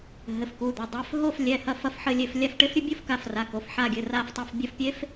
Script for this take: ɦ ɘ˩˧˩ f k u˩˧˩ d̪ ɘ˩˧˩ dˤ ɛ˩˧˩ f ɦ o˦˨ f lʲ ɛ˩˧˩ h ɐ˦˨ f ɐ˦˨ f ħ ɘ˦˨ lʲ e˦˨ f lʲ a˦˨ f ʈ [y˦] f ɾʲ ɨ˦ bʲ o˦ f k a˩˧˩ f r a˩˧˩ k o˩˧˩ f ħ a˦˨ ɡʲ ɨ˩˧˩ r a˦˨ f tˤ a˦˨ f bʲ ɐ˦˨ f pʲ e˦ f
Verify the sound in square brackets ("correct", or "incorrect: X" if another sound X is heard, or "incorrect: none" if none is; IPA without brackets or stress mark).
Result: incorrect: e˦